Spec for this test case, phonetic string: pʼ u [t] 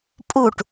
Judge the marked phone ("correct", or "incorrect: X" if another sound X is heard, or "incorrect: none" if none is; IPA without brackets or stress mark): incorrect: ʈ